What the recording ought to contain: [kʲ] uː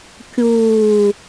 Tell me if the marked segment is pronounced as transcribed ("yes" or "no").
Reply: yes